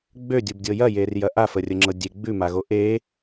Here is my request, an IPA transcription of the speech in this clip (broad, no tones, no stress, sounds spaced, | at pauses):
ɡ͡b ø dʲ u b dʲ ɤ j ɐ j e r j ɐ ʔ a f ə rʲ ə ŋ͡ǁ ɤ dʲ e ɡ͡b ʉ m a ɣ o ʔ e